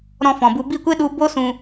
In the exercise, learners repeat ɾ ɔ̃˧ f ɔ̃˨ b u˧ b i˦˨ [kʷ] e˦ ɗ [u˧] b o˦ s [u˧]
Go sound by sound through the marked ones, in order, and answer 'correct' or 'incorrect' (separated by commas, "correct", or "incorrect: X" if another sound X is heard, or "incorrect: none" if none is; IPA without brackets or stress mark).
correct, correct, incorrect: ũ˧